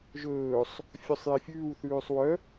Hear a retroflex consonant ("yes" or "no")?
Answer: no